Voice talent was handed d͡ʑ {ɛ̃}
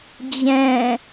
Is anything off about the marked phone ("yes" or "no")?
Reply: no